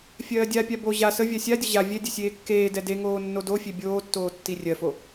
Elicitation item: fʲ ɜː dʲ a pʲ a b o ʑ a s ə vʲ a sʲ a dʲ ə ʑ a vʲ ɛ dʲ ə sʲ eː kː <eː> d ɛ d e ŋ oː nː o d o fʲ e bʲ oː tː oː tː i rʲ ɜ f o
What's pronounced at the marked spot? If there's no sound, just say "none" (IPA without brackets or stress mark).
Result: eː